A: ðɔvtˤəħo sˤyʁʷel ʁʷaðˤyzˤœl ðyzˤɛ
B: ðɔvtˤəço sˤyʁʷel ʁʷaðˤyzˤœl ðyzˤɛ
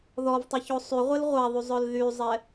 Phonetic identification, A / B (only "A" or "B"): B